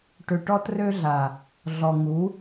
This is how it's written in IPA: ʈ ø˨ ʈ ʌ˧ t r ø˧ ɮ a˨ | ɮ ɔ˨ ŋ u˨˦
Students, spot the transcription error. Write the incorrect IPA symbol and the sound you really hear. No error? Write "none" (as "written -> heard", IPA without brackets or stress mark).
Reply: ʌ˧ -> ɔ˧